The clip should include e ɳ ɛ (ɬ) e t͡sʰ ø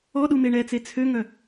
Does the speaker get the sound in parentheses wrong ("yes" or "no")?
yes